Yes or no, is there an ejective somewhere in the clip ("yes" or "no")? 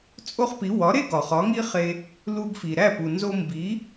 yes